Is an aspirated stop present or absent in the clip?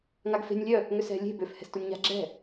absent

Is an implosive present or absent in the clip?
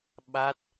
present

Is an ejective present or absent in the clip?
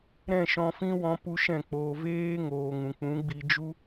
absent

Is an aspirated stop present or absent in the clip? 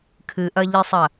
present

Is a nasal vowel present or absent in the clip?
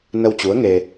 absent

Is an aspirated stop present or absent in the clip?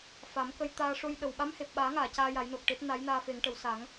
absent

